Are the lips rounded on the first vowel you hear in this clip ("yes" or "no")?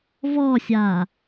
yes